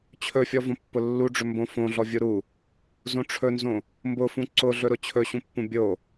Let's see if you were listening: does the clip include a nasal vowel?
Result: yes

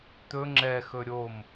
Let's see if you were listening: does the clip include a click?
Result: yes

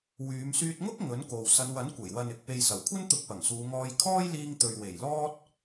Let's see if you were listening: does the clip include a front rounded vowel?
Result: yes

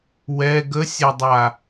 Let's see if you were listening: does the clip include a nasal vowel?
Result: no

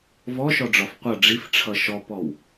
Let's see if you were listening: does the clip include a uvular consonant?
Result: yes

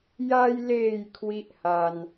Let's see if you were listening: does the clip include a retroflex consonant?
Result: no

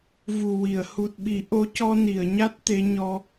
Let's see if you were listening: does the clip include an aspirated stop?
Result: no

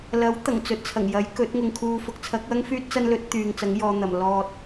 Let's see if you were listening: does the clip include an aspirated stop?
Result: yes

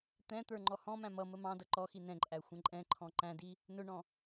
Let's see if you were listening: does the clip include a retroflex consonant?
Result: yes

